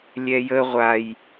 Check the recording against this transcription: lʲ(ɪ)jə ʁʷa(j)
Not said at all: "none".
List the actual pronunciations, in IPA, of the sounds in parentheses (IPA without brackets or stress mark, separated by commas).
ɛ, j